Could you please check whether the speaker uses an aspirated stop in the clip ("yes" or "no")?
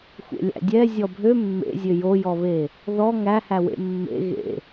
no